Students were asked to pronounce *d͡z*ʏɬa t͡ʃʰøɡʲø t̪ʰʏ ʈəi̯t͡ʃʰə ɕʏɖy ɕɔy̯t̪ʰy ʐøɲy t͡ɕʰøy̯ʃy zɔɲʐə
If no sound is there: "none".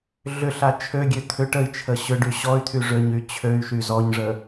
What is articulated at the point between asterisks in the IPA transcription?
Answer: ɮ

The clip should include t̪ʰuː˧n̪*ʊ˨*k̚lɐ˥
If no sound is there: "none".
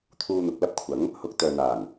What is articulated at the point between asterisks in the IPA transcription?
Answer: ʊ˨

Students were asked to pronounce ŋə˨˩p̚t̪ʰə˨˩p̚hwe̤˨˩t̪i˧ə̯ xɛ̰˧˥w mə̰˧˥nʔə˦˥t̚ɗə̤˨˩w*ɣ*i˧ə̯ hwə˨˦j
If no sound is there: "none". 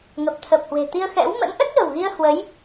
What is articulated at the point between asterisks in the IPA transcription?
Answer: ɣ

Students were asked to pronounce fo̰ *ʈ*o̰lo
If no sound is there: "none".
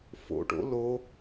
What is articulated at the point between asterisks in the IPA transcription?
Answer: ʈ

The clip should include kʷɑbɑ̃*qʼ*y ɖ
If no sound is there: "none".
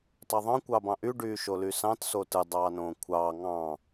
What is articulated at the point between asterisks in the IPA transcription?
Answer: ʔ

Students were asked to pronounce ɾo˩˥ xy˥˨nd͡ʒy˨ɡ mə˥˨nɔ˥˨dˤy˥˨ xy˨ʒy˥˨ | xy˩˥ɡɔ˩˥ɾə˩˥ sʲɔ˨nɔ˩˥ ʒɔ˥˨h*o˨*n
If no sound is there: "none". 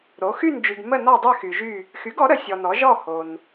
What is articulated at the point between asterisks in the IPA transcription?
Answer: o˨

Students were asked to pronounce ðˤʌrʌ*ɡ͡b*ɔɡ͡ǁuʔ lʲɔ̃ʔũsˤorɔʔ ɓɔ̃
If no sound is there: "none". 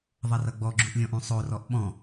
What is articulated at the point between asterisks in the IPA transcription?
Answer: ɡ͡b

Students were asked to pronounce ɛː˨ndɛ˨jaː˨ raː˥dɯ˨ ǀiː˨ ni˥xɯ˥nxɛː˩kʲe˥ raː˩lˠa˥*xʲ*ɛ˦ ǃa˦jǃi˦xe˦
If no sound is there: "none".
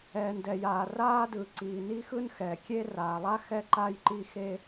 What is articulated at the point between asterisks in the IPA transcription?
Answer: x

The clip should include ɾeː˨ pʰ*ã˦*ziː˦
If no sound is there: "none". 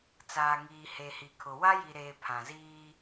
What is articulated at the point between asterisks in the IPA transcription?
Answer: ã˨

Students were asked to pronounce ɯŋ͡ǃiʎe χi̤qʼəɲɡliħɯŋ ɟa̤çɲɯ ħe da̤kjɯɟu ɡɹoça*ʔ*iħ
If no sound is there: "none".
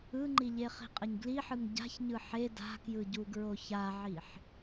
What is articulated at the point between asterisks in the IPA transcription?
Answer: ʕ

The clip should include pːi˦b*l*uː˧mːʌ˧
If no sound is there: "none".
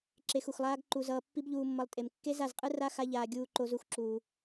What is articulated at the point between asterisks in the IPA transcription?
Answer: ʎ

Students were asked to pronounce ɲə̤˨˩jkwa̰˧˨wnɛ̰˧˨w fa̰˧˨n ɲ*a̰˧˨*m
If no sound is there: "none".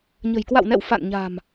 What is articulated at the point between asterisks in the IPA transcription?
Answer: a̤˨˩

